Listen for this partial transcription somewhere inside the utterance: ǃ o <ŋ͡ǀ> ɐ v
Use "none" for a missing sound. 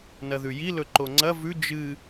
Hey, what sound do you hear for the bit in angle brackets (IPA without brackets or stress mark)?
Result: ŋ͡ǀ